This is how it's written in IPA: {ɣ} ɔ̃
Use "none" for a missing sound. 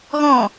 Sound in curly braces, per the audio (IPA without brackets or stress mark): ɣ